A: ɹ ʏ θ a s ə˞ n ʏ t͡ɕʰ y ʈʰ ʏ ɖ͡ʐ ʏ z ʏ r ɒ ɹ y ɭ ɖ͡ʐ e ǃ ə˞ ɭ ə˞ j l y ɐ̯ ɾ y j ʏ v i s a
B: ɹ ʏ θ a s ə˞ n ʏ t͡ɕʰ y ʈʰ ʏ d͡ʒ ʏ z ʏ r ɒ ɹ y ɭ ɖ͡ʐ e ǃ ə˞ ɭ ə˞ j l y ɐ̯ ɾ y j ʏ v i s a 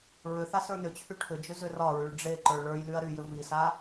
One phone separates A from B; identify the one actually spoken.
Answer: B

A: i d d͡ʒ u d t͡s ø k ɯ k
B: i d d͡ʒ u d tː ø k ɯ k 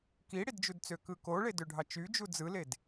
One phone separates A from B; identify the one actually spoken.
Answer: A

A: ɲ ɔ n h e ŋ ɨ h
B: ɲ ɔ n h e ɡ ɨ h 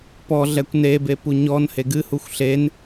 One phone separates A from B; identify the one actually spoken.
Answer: B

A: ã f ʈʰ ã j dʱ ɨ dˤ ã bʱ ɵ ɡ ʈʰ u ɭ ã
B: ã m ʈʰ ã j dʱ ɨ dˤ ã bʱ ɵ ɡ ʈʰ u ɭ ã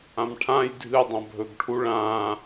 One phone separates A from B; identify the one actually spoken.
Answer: B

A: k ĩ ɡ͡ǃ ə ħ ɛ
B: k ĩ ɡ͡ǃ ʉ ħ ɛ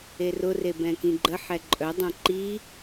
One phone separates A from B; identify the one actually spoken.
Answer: A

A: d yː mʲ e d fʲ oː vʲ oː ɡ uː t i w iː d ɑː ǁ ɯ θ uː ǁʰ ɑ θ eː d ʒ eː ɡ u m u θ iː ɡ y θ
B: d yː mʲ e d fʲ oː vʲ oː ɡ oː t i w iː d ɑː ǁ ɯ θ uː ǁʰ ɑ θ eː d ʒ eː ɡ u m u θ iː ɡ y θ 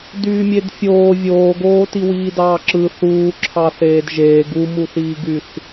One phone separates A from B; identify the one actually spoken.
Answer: B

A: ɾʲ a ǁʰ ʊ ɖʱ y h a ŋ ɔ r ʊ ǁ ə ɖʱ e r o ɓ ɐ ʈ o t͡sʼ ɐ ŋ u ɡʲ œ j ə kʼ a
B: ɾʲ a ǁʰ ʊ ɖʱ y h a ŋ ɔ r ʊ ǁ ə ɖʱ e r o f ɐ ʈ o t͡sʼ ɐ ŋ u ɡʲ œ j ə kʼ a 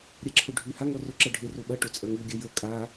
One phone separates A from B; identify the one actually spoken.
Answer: A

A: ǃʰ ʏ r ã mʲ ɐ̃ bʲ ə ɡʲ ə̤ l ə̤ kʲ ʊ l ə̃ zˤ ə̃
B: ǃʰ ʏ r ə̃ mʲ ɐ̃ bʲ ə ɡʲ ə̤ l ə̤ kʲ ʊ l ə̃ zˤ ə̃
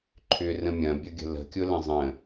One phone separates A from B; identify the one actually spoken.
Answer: B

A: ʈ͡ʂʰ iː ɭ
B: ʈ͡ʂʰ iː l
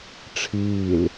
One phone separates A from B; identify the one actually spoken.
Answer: B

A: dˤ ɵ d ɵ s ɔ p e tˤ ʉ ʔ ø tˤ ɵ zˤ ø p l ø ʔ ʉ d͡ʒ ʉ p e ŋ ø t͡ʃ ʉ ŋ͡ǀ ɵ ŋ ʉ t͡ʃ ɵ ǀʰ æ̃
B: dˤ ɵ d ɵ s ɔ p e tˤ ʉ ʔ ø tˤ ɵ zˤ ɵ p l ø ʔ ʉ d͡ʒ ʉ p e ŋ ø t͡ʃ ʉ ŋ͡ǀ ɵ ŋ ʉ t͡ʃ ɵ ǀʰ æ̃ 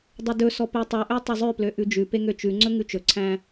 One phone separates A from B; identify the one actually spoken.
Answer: A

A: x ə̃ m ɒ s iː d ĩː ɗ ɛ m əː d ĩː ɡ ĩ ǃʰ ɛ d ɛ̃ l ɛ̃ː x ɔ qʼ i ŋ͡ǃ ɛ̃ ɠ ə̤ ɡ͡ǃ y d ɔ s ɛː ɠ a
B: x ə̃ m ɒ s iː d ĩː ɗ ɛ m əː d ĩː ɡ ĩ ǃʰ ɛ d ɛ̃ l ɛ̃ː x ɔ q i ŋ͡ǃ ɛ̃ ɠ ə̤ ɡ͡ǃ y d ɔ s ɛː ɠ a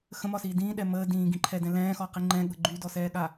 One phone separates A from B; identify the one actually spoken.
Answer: B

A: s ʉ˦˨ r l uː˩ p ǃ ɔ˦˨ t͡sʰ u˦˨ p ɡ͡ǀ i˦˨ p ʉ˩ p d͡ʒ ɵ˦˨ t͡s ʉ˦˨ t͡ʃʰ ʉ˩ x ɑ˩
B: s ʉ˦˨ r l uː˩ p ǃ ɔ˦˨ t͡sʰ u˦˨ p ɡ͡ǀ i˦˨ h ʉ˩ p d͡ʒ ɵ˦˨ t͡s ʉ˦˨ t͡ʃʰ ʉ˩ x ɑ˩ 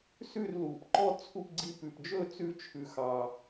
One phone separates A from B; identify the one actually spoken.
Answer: A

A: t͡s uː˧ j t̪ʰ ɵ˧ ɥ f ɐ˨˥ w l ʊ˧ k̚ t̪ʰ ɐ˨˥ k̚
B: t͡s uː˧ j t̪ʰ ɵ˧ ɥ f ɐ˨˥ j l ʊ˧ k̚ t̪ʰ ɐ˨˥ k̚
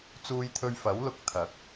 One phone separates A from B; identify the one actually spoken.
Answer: A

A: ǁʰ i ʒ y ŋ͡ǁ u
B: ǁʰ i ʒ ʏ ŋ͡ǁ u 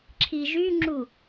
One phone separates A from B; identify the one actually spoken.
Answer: A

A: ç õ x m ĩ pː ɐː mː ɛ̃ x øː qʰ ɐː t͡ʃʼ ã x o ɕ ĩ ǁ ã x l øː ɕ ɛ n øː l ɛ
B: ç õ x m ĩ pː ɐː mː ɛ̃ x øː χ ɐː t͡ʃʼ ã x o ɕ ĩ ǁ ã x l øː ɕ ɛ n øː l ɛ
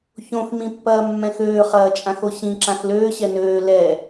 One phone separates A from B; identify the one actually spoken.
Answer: B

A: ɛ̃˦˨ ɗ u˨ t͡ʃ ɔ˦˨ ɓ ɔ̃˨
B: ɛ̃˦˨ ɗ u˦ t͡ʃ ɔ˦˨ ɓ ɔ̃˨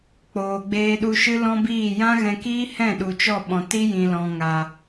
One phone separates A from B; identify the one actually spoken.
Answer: A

